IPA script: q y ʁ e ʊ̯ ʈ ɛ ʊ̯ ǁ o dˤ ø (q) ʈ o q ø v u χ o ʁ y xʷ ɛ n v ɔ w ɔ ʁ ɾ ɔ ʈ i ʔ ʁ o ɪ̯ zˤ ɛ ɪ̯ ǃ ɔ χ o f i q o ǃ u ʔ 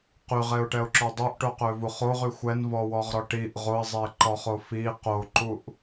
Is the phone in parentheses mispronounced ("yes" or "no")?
yes